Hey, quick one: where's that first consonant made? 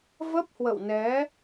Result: lips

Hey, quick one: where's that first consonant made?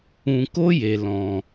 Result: velum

